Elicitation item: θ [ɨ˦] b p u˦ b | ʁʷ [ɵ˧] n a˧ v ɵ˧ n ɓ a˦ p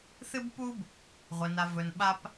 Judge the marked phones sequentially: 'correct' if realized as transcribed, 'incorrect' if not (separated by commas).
correct, incorrect